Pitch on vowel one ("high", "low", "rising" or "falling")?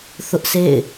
high